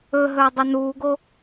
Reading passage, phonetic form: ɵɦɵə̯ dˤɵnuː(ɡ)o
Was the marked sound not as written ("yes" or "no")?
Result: no